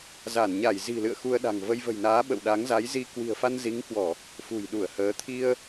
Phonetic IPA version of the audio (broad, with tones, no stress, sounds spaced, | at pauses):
z a˧˩ n ɲ a˧˩ j z i̤˨˩ l ɨ̰˧˨ ə̯ x u˧ ə̯ ɗ a̤˨˩ ŋ v ə˧ j v ə̤˨˩ j n aː˨˦ ɓ ə̰˧˨ w ɗ a˨˦ ŋ z a˨˦ j z i˨˦ k w i̤˨˩ ə̯ f a˧ n z i˨˦ ŋ k w ɔ˧˩˨ | f ṳ˨˩ j ɗ u˧˩ ə̯ h əː˨˦ t̪ʰ i˧ ə̯